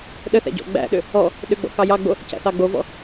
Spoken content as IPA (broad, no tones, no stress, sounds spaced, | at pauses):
ɗ ə θ æ̰ ɟ ɔ̰ ɡ͡b æ̰ ɗ ʏ | ɔ | ɗ ʏ ɡ͡b ɔ̰ k ɑ j ɑ ɡ͡b o | c æ̰ θ ɑ ɡ͡b o v ɔ̰